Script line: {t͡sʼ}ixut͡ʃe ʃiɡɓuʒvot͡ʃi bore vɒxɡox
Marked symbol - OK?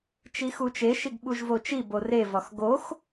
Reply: no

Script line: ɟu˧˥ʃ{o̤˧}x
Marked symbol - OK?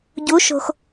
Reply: yes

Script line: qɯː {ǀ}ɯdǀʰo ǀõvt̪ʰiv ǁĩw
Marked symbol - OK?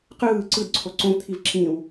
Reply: yes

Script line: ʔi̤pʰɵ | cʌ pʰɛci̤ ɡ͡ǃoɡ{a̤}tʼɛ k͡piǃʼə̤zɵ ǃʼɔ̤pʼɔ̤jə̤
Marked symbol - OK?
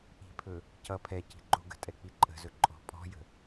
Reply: no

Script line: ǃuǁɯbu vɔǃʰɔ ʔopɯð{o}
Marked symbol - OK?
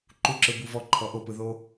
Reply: yes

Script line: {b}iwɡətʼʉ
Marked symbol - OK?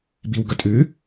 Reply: yes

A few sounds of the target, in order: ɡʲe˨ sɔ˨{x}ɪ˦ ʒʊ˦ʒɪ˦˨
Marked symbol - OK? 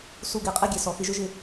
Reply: yes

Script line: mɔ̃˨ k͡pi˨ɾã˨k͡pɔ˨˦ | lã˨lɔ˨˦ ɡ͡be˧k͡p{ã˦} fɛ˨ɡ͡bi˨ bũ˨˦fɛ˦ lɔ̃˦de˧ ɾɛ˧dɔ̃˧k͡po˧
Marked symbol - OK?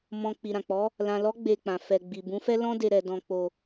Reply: no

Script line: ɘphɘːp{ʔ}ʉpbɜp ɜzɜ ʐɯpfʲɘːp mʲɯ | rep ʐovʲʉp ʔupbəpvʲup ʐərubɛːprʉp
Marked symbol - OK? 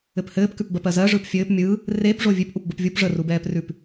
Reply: no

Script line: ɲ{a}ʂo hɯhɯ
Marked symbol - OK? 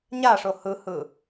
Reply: yes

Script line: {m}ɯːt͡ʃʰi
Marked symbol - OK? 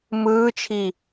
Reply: yes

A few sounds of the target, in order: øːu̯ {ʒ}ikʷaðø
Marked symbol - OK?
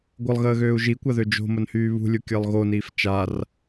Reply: yes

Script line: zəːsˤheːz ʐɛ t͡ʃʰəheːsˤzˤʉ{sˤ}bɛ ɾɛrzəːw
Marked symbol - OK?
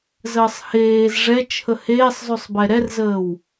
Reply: yes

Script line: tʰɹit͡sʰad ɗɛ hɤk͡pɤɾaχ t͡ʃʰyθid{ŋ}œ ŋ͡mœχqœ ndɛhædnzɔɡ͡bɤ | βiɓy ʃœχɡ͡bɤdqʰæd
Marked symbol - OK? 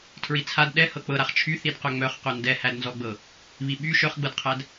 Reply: no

